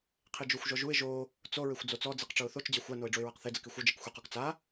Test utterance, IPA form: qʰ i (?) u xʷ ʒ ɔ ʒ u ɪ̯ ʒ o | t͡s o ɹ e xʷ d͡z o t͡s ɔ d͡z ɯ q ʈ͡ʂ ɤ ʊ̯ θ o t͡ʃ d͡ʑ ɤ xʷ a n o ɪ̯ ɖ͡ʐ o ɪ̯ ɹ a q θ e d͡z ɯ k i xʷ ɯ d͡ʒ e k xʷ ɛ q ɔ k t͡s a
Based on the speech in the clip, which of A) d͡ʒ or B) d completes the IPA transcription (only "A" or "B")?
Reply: A